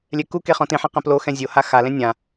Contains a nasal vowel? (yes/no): yes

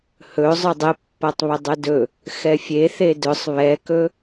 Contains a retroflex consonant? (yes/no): no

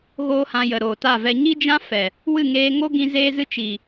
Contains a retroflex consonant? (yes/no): no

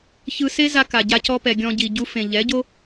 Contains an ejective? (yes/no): no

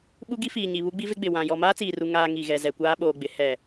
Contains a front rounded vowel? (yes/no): no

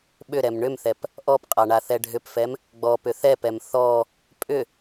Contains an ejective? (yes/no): yes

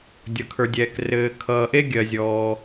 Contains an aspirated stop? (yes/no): yes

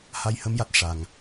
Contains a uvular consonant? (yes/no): no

